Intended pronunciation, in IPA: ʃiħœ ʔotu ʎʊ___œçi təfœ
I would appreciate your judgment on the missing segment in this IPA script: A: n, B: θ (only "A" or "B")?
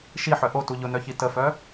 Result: A